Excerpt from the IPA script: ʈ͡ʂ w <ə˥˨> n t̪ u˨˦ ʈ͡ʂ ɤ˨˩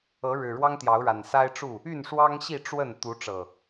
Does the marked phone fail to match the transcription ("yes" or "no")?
no